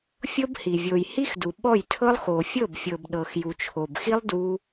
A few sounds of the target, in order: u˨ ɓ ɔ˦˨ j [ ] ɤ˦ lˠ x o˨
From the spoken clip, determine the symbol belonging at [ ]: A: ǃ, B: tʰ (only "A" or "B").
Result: B